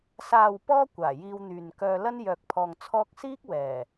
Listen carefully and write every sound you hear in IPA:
s aː˨ w p ɔː˧ kʷ aː˨˩ j iː˧ w n̪ yː˨ n k œː˧ l ɐ˥ n j œː˨ k̚ pʰ ɔː˨ ŋ t͡sʰ ɔː˧ k̚ s iː˥ k̚ w ɛː˨˩

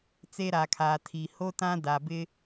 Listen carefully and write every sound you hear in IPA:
t͡s e˦ ɾ aː˨ kʰ aː˨ tʰ iː˨ h o˦ t ã˦ d a˨ b ɪ˦

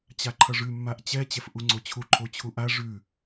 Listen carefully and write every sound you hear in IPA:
t͡ɕ a ǃʰ ʌ ʐ ʉ mː a ʔ t͡ɕ ɛ t͡ɕ ɛ f ʔ u ŋ͡ǀ o t͡ɕʰ u ǃʰ o t͡ɕʰ u ʔ a ʐ ʉ

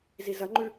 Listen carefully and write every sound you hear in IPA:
z i z ɐ ŋ͡ǃ ʉ

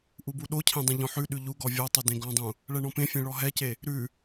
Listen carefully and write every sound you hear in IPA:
ʔ u b u ɗ o cʰ ẽ dˤ ẽ ʎ ɔ̃ ħ ʉ ɗ ʉ ʎ u ɡ ɔ vʲ ɔ tˤ ʉ d ẽ ɡ ɔ̃ dˤ ũ | ɭ ɛ ɳ ɔ̃ p ẽ fʲ ẽ ɭ ɔ ɦ ɛ c e | ɾ ʉ

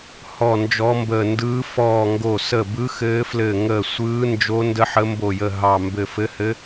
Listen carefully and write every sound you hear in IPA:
h ɔ˧˩ n d͡ʒ ɔ˨˦ m b əː˧˩ n d ɯː˨˦ f ɔː˧˩ ŋ ɡ o˧˩ s ə˧˩ b ɯ˨˦ x ɘː˨˦ f l ɘː˧˩ ŋ əː˧˩ sʷ ɯː˨˦ n d͡ʒ o˨˦ n d ə˨˦ ħ ə˨˦ m b o˧˩ j ə˧˩ ɦ ɑ˧˩ m b ɘ˧˩ f ɘ˨˦ h ɘ˨˦

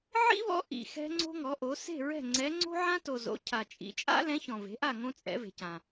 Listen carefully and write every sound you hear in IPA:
ʕ ḭ˥ β ɔ̰˧˥ ʔ ḭ˨ x ɛ̤˥ ŋ͡ǀ o̤˥ ŋ ɔ˩˥ ʔ o˩˥ s e̤˥˨ ɹ ɛ̤˥˨ ŋ͡ǀ ɛ˧˥ ŋ͡ǀ o̤˥ ʕ ã˥ t o˨ z o̰˩˥ cʰ a˨ t͡ʃʼ ḭ˩˥ t͡ʃʼ a̰˥ l ɛ̃˧˥ ç ɔ̃˨ v e̤˩˥ ʔ a˥˨ ŋ õ˥ t͡sʼ ɛ̰˩˥ v e̤˨ c ã˨

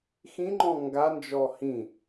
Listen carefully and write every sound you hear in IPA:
x ĩ ŋ͡ǃ ɔ̃ ŋ ɡ a n d͡ʒ ɔ h ĩ

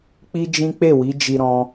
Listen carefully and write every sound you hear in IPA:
k͡p i˦ d͡ʒ ĩ˦ k͡p e˦˨ w i˨˦ d͡ʒ i˧ ɾ ɔ̃˧

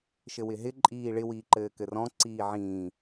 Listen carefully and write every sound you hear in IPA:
ʃ ɘ w ɪ ɦ ɪ ǃʼ iː ɭ ɪ w iː ǃ ɘː k ɘ r ɔ̃ ǀ iː ʕ ĩː

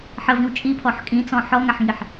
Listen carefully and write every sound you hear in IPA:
ħ ə v ĩ w t͡ʃʼ i pʰ ɔ ħ kʼ ĩ t͡s ɔ̃ ħ ɔ ŋ a ħ ŋ i ħ

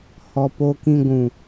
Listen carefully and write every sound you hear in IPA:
h ɔ˨ p o˨ k ĩ˨ ɡʷ ũ˨

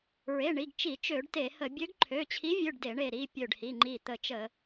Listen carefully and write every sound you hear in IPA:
ɹ e˩˧˩ ɳ i˩˧˩ ɡ t͡ʃ i˧˩˧ t͡ʃ ø˧˩˧ ɖ t e˧˩˧ h ə˧˩˧ bʲ ø˧˥ ɡ ǃʰ ø˩˧˩ t͡ɕʰ i˧˥ vʲ ø˩˧˩ ɖ d e˧˩˧ ɳ e˧˩ ɾ i˩˧˩ pʲ ø˧˩ ɖ h i˩˧˩ ŋ͡ǃ i˧˩ t̪ ə˧˩˧ t͡ʃ ə˧˩˧

